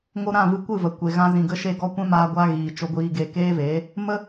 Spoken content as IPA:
ŋ o˧ ɾ ã˦˨ v ɨ˧ kʷ ɨ˦˨ v ə˨ kʷ e˨ ɣ ã˧ z ĩ˨ ɡ ə˧ ʃ e˧ ɡ ɔ˧ kʷ ɛ̃˦ m aː˧ ɡʷ a˧ ɣ iː˨ t͡ʃ o˦ ɡʷ iː˦ ɡ e˦ k eː˦ v eː˨˦ | m ə˦

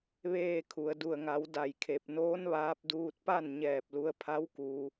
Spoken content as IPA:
ʋ eː˧˩ kʰ u˩ ə̯ d u˧˩ ə̯ ŋ a˩˧ w d a˧˩ j kʰ e˧˩ p̚ n oː˧˥ n ʋ aː˧ p̚ d uː˧ t̚ p a˥˨ n ɲ ɛː˧˩ p̚ l u˧ ə̯ pʰ a˧˥ w k uː˧

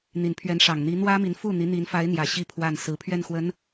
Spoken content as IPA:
n̪ i˨˩ n pʰ ɥ ɛ˧˥ n ʂ ɑ˨˩ ŋ n̪ i˧˥ n̪ w ä˥ m i˧˥ n f u˥˩ n̪ i˧˥ n̪ i˧˥ n f a˧˥ ɪ̯ n̪ j ä˨˩ ɕ i˥ pʰ w a˥˩ n s ɹ̩˧˥ pʰ ɥ ɛ˥˩ n x w ə˧˥ n

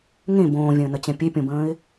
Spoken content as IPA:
ŋ ẽ b õː vʲ ə̃ː n ə t͡ɕ ɛ̃ pʲ e pʲ õ b ə̃ː ɪ̯

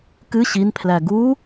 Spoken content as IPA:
k ɨ ɕ i n pʰ l æ ɡ u

